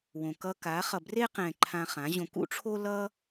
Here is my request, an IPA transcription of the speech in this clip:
wõ˨kʌ˧ka˨˦ χʌ˨bre˦qɛ̃˨ ǃʰã˧χã˨˦ʑõ˧ kṵ˦ʈ͡ʂʰo˦lʌ˦

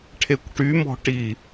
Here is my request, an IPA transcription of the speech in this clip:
ʈʰekʷʈymɔ̤ ʈi

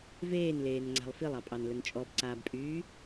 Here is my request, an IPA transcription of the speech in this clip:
veːnleːnŋ͡ǀa̤lˠ filˠɑpʼɑnlən t͡ʃʼɔbǀaːbpʼyː

